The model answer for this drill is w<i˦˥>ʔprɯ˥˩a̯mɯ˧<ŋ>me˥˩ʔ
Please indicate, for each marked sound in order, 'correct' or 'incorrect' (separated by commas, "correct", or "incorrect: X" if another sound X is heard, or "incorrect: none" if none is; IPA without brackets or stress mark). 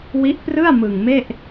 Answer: correct, correct